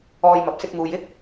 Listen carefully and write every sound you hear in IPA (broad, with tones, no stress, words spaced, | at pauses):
ɔː˧jmɐ˨p̚ sɪ˧k̚muː˨jɪ˥k̚